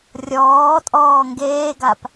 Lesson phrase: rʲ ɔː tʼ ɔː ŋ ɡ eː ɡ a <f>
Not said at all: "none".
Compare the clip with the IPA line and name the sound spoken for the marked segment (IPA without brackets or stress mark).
p